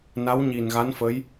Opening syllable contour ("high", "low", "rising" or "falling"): rising